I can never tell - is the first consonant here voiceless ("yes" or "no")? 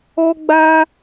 no